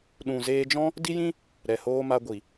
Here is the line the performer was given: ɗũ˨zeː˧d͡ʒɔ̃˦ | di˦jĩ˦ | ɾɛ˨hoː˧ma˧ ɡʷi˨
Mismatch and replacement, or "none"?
none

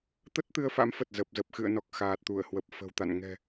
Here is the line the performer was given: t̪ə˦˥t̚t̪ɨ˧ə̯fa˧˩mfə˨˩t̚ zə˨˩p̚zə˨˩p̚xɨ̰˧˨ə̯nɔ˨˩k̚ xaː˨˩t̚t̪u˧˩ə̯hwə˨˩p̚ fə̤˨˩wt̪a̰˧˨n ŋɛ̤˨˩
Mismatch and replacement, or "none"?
a˧˩ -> a̰˧˥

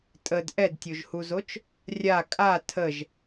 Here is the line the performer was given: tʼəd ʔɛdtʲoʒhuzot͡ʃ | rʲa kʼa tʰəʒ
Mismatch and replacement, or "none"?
none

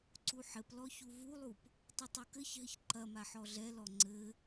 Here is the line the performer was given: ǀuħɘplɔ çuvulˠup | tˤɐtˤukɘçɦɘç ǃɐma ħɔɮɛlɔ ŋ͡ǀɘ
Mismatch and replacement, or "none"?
none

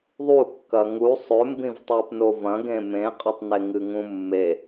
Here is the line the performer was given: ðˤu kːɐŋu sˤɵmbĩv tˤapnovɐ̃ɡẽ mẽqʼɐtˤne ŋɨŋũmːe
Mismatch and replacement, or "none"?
none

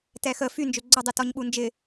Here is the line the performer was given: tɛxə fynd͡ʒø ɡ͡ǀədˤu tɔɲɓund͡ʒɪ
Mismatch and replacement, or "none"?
none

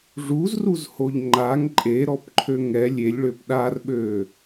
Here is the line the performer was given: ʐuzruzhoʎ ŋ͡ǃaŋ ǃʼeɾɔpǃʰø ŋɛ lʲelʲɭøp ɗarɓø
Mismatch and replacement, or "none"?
none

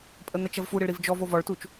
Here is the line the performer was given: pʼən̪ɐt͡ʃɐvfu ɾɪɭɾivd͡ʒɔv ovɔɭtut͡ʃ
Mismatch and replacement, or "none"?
none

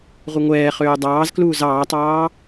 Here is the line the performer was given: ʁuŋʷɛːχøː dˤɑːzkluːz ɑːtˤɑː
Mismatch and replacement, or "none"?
none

